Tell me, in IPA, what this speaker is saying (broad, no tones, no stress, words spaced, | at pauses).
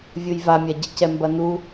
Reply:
vʲujvamʲaɟɘ cɛmbɐnu